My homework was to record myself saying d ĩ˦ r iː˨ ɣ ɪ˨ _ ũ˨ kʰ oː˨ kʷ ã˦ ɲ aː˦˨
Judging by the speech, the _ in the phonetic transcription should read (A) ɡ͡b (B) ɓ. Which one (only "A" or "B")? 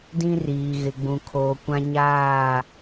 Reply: A